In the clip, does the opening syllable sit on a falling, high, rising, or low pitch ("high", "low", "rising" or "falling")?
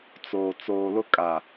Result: low